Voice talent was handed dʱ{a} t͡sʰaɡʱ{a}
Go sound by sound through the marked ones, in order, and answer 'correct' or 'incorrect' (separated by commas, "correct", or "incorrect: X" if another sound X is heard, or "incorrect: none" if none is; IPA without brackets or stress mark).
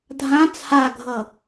incorrect: ã, incorrect: ʌ